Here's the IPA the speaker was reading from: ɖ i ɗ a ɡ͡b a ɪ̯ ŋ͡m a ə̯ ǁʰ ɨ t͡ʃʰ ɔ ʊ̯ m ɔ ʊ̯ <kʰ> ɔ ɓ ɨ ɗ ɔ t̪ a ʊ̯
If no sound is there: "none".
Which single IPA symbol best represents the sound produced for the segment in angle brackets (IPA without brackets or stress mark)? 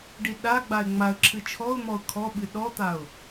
kʰ